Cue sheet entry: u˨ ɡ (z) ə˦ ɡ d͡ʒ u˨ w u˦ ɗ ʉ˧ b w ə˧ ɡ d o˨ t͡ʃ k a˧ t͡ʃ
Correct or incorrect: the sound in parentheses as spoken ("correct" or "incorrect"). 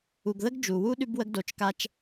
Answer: incorrect